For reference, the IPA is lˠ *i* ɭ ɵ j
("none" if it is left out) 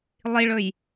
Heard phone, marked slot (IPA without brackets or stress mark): i